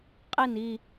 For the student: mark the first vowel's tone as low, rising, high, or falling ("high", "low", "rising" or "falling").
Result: falling